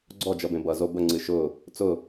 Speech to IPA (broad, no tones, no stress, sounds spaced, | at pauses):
ɡ͡ǀ ɔ d͡ʒ ʌ b ẽ b ʌ z o b ə ŋ͡ǀ ɨ ʃ ʊ | t͡s ʊ